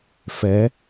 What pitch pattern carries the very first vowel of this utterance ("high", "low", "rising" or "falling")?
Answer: rising